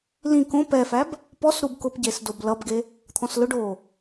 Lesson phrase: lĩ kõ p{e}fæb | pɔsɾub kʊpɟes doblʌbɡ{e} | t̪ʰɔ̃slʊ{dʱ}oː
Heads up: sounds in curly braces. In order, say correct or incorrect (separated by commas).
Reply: incorrect, correct, incorrect